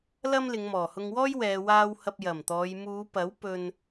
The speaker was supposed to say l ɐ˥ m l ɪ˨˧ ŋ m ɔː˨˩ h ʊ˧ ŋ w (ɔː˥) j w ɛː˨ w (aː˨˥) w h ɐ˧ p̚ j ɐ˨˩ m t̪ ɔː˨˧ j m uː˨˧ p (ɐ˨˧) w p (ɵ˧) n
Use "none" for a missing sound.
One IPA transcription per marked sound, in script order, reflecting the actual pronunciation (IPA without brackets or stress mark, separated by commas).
ɔː˥, aː˧, ɐ˨˥, ɵ˧